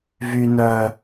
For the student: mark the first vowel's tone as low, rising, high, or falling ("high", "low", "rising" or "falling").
low